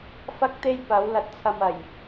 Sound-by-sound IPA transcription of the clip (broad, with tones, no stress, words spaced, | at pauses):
fɐ˥k̚t̪e˥j pɐ˨˥wlɐ˧t̚t͡sʰɐ˧mɐ˨˩j